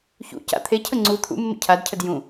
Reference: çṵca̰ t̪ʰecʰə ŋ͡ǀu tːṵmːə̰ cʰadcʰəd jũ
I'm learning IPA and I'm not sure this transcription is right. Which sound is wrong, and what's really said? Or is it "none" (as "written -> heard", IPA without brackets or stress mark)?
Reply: tː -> t̪ʰ